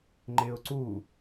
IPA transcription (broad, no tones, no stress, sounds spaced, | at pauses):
ŋ͡ǃ ɪ ʊ̯ ǀ u